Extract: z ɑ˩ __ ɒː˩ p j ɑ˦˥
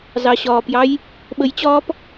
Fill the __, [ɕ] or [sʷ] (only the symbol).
ɕ